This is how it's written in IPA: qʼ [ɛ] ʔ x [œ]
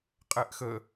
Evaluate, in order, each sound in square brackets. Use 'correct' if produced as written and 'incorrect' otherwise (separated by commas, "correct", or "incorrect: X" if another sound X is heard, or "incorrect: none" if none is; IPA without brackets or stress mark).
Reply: correct, incorrect: ə